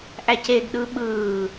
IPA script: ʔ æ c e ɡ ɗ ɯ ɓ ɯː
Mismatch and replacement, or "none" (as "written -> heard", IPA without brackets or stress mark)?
none